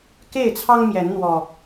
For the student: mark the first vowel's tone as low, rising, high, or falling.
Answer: falling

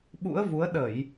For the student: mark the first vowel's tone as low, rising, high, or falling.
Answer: rising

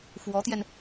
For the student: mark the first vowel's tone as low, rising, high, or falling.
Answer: rising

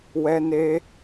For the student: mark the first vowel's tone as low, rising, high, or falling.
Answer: high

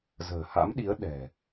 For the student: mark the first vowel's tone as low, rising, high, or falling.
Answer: low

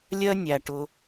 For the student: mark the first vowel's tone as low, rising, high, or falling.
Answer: high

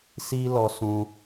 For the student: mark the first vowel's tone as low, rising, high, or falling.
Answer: high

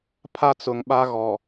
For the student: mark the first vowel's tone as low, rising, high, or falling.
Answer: high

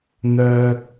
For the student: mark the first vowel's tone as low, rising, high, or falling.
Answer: high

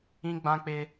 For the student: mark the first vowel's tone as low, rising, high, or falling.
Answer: high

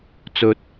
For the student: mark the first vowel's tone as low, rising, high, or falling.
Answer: low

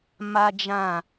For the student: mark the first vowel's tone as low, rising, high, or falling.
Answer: high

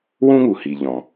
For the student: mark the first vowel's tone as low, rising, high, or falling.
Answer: high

